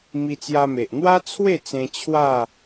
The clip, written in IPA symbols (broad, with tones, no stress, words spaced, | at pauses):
mi˧t͡sja˧me˨ʔ n̪wa˦t͡sʰwe˥˧t͡sẽ˧ t͡ɕʰwa˥˧